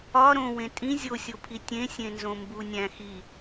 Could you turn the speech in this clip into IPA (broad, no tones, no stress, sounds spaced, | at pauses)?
ɒ ɾ õ w ẽ tʼ ĩ zʲ o sʲ o pʰ i tʲ ẽ sʲ ẽ n z õ m b u nʲ æ̃ x i